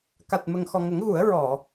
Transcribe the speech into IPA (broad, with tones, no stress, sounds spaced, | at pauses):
k a˨˩ t̚ m ə˨˩ ŋ x ɔ˨˩ ŋ ə˨˩˦ ŋ ɣ u˨˩˦ ə̯ ɹ ɔ˨˩˨